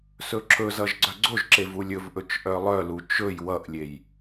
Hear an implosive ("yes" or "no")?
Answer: no